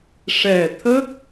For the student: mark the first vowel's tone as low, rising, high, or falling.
low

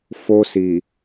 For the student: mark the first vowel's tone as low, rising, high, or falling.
high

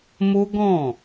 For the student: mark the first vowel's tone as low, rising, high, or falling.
high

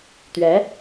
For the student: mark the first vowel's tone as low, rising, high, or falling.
rising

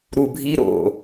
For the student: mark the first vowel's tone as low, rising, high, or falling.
low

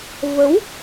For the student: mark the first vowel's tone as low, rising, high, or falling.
rising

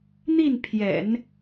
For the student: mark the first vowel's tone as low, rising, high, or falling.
falling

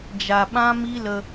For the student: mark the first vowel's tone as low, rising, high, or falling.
low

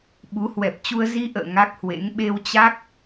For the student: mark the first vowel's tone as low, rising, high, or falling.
rising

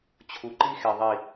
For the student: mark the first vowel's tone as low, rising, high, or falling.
low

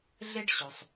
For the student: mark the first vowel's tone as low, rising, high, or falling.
high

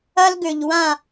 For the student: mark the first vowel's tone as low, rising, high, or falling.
high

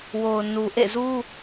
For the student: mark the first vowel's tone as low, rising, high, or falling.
low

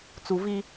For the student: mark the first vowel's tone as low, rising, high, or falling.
low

